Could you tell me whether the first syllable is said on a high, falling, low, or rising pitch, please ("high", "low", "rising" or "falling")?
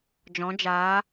rising